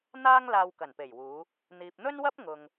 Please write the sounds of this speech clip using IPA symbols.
n̪ aː˥ ŋ l aː˧ w k ɐ˨˩ n p e˨˩ j w uː˨˧ | n̪ iː˨ p̚ n̪ ɵ˥ n w ɐ˥ p̚ ŋ ʊ˨ ŋ

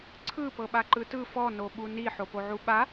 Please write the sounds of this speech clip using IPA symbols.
ǀʰ ɯ p ɤ ɓ a ǃ ɯ t ɯ f ɔ n o ɓ u n i ħ o p o ʕ u ɓ a

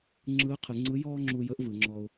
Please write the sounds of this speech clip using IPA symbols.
ŋ͡ǁ ɯ˧˥ qʰ ɯ˩˧ ŋ͡ǀ ɯ˧˥ j ɔː˥ ŋ͡ǁ u˧ j əː˧˥ ʔ v ɯ˩˧ ŋ͡ǁ ɔ˧ ʊ̯

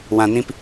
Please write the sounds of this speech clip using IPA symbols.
w ã˨ n ĩ˧ p

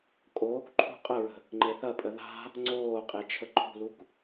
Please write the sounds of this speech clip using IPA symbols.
kʼ oː k ǃʰ ṳ qʼ ə ɹ ə̤ | ŋ͡ǃ e θ ɐ pʼ ə ð a̤ | ŋ͡ǀ oː qʼ e t͡ʃʰ ə ǃʰ ṳ l u k

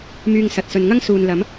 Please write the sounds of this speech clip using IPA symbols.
m yː˧ ŋ s ɐ˨ t̚ s ɵ˨ n ŋ ɐ˥ ŋ s uː˨ n l ɐ˨˥ m

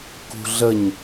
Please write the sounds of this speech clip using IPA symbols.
k ṳ ɮ ə ɲ

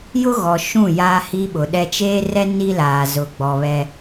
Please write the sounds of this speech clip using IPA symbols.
j ʊ˦ ɣ ɔ˨ ʃ ũ˦˨ j aː˦ h i˦ ɓ ʊ˨ ɗ ɛ˦ t͡ʃ eː˦ r ɛ˦ n i˦ l aː˨ z ʊ˨ ɡ͡b ɔ˨ β ɛ˦

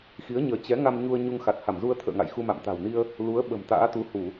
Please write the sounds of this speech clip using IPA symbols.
x i˨˦ ə̯ ɲ əː˧ t͡ɕ ɛ˨˦ ŋ a˧ m ɲ u˧ ə̯ ɲ u˧ ŋ x a˨˩ t̚ h a˧˩ m z u˧ ə̯ t̪ʰ ə̰ː˧˨ ŋ a̰˧˨ j x u˧ m a̰˧˨ m t̪ a̤˨˩ w n i˧ ə̯ | l u˨˦ ə̯ ɓ ə̤˨˩ m t̪ a̰ː˧˥ t̪ u˨˦ h u˧˩˨

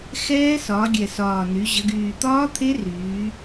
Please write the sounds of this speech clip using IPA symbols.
x ɛː˦˥ s ɒ˩˧ ɡʲ ɛ˨˩ s ɒː˨˩ n y˩˧ ʑ ə˩˧ ɡ yː˨˩ t̪ ɒː˦˥ t̪ʰ e˦˥ r yː˩˧

